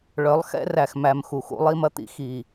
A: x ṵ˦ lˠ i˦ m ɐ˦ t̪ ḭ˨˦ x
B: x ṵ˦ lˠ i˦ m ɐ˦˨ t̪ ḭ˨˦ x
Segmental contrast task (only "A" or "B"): A